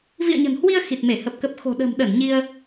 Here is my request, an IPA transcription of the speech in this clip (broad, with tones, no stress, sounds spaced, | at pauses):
v ḭ˧˨ ə̯ ɲ ə̤˨˩ n h w i˧ ə̯ x i˨˩ t̚ m e˧˩ h ə˨˩ p̚ k ə˨˩ p̚ x o̤˨˩ ɗ ə̤ː˨˩ m ɗ ə˧˩ n ɲ i˧ ə̯